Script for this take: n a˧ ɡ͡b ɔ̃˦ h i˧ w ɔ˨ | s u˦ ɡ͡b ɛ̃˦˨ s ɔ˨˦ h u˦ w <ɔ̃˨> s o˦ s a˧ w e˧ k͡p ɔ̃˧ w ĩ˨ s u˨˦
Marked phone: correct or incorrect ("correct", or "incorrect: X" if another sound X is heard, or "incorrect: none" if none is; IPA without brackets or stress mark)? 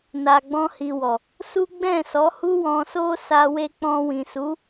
incorrect: ɔ̃˧